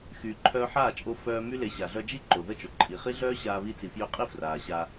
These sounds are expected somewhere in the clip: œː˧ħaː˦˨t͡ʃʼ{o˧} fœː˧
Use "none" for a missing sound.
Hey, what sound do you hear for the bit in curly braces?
o˧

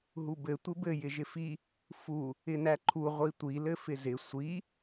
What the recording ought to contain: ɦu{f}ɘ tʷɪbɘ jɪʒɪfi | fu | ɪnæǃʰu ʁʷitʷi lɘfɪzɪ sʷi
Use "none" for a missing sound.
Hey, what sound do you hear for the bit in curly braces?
b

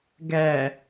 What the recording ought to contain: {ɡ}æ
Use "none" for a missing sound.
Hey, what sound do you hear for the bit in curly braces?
ɡ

